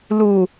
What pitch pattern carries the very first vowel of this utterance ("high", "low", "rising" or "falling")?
low